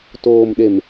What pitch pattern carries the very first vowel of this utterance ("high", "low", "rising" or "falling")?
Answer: low